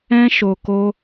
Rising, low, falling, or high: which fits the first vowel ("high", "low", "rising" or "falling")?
high